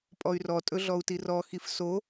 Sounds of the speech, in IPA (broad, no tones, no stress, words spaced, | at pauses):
pʼɔy̯rɔ tʼɵɮɔu̯tirɔ xifso